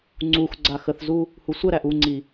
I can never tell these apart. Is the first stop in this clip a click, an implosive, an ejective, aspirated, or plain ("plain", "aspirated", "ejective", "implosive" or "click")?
click